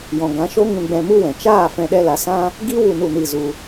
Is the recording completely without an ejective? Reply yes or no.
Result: yes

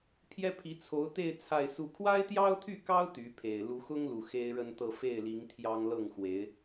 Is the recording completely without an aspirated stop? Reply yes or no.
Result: no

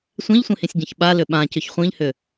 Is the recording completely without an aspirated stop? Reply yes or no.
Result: yes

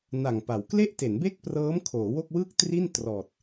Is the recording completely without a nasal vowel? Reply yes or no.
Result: yes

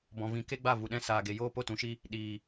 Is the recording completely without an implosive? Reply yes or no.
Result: no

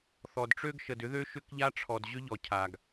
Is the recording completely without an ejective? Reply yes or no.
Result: yes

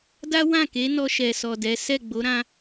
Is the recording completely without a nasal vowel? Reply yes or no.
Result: no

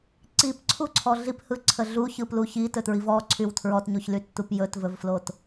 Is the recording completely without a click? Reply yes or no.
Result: no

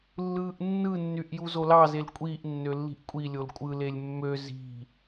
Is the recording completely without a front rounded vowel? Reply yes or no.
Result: no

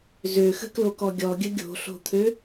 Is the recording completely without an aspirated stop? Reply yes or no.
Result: no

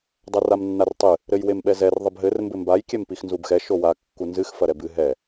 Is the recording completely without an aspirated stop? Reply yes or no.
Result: yes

